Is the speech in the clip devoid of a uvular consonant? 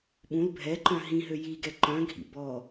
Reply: yes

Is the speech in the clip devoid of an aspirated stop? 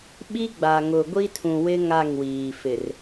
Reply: no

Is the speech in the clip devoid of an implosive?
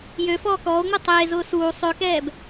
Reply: yes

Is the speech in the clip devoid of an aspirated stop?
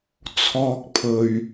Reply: no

